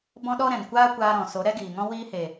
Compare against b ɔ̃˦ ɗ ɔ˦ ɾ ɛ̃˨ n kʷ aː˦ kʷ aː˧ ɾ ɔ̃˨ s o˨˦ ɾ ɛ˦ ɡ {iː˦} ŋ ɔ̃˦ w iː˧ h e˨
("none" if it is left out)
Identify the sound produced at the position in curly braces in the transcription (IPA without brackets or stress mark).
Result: iː˨